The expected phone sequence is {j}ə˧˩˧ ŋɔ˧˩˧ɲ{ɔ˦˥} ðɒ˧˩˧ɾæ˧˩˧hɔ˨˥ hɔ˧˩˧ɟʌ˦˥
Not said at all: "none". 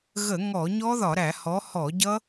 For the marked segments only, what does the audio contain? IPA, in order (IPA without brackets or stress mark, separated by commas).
ɣ, ɔ˦˥